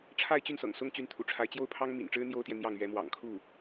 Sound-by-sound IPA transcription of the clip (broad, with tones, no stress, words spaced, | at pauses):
ʈ͡ʂʰa˥˧ɪ̯t͡ɕy˥˩nsɤ̰˨˩ŋ sʊ˥ŋ t͡ɕy˧˥nt̪ʰṵ˨˩ʈ͡ʂʰa˧˥ɪ̯t͡ɕjo˥ʊ̯ pʰɑ˥ŋmḭ˨˩nʈ͡ʂɻ̩˥ n̪jo˥ʊ̯t̪jɛ˨ n̪jɑ˥˩ŋ ɥɛ˧˥mwɑ̰˨˩ŋkʰu˥˩